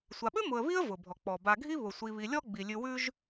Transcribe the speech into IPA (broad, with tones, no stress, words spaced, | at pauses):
sʷa˨ɓʉ˥ mʊ˨ə̯βi˥ə̯ vʊ˩bʱɔ˩k͡pɔ˩ ba˨ɡʱi˥ βʊ˩ sʷi˨βi˨ lʲɔ˦ ɡ͡bi˩lʲʉ˨wʉ˦ʒ